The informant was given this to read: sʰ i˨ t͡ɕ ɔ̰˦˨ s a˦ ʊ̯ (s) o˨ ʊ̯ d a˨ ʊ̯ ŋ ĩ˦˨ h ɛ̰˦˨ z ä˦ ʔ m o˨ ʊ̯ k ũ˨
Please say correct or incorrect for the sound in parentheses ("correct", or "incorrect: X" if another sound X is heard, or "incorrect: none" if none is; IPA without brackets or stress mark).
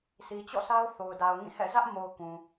incorrect: θ